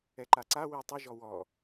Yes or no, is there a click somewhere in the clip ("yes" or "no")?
yes